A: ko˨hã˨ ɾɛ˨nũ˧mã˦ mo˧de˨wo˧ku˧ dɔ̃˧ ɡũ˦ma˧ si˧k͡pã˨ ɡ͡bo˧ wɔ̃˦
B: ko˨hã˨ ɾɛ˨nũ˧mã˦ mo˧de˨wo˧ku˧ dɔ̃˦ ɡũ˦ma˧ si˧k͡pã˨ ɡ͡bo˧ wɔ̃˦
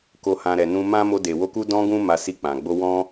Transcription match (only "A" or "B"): A